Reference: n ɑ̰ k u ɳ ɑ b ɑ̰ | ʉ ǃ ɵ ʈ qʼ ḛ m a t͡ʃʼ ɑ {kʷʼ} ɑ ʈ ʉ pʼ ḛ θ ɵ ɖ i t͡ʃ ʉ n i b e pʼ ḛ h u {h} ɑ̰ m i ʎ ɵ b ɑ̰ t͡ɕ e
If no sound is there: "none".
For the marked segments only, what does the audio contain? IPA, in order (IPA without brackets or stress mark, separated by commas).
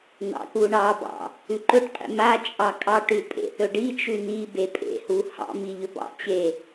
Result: kʼ, h